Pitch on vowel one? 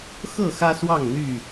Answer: falling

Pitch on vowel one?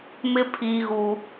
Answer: high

